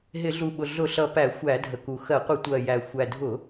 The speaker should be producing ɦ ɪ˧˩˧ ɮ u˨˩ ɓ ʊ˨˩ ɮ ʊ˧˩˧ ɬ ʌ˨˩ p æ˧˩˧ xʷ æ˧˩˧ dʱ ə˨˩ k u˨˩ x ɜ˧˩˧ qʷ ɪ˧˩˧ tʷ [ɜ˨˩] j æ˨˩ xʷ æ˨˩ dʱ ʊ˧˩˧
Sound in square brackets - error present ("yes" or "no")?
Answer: no